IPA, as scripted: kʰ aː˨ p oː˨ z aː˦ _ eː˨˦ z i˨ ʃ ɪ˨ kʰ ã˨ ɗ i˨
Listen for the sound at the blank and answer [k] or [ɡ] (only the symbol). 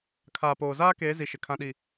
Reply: k